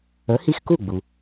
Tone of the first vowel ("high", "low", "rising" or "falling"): rising